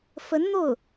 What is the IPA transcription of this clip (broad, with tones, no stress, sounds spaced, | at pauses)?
f ə˧˥ n n̪ o˥˩ ʊ̯